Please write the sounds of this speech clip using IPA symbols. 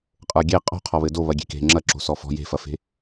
qʼ ə˞ ɡʲ e qʼ ɔ̤ qʰ ɔ β ɘ d o β ɐ ɡʲ e̤ k e̤ ŋ͡ǁ ɐ ǁ o̤ s ɔ f ɔ̤ j e̤ f ɐ f e̤

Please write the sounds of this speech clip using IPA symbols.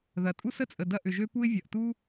ð ɐ˩ tʼ u˥ s ə˩ t͡sʼ ə˩ d ɐ˥ ʔ ʏ˩ ʒ ø˥ p u˥ ɪ̯ vʲ ɐ˩ ʔ t u˥

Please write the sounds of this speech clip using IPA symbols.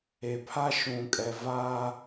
e˨ pʰ a˦ ʃ ũ˨ kʼ ɛ˨ v a˦

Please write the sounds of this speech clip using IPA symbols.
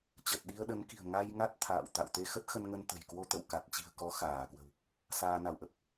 t͡ɕ ə˨˩ t̚ ɗ i˧ ə̯ ɗ ə˨˦ n k i̤˨˩ ə̯ ŋ a˧ j ŋ a˦˥ t̚ t̪ʰ a̰ː˧˨ w t̪ a̰˧˨ w t̪ e˧ x ə˦˥ t̚ x ə˧ n ŋ ə˧ n t̪ ə̤˨˩ j k w o˧ t̪ ə̰˧˨ w k a˨˩ t̚ t͡ɕ i̤˨˩ ə̯ k ɔ˨˦ x aː˧˩ k w ə̤˨˩ w | s aː˧ n a˧˩ w ʔ ə˦˥ p̚

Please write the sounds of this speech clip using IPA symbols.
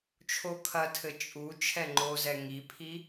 t͡ʃʰ o kʰ ɐ tʰ ɘ t͡ʃʼ u t͡ʃʰ ɛ ŋ͡ǃ o z ɛ ŋ i pʰ i

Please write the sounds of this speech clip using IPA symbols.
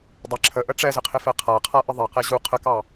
dˤ ɪ ǁʰ ə ʔ ə ʈ͡ʂ ɛ z ɪ qʰ ɪ f ɛ qʰ a qʰ a ʔ ə ðˤ ɛ q ɛ ʑ u qʰ ə k ɑ

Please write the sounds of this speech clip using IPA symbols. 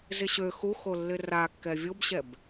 z ɪ ɕ ø x u x o lː ɪ r a kː ɛ vʲ o b ɕ ɛ b

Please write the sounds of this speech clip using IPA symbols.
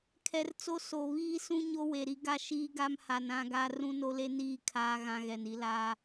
kʰ ɛ˨ r t͡s o˦ s o˨ β iː˦ s ũ˦ ɲ o˦ w e˨ ɾ i˦ ɡ a˦ ʃ iː˦ ɡ a˦ m h a˨ n ã˦ ɡ a˦ r ũ˦ n o˦ l e˦ n iː˦˨ kʰ aː˦ ɣ ã˦ ɣ ɛ˨ n i˦ l a˦

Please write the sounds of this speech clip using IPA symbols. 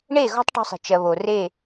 ɳ eː˦˨ ɣ ɔ̤˦ tˤ ʈ ɔ̤˦ sˤ i̤˨ t͡ʃ ɜ˨ β o˨ r e˦˨

